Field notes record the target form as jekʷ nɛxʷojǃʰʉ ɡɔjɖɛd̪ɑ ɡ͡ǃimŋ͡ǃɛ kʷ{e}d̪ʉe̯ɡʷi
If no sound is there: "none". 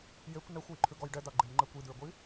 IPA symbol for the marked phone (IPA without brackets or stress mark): i